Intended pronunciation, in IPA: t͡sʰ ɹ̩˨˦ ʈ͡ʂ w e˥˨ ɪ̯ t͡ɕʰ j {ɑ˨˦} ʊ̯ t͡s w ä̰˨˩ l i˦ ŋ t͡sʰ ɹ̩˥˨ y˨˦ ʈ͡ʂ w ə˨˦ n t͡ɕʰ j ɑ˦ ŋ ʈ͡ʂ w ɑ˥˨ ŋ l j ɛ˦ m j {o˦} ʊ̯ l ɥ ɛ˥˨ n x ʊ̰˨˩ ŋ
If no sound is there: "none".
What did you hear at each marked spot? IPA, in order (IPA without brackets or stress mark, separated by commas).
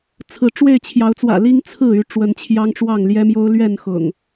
ɑ˨˦, o˦